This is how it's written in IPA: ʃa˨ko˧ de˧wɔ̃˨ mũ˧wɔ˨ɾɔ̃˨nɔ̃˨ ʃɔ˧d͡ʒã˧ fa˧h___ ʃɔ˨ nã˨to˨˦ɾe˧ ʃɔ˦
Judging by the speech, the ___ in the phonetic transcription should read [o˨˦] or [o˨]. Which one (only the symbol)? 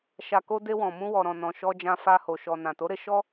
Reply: o˨